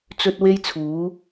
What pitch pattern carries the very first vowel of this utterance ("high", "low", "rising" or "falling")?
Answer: high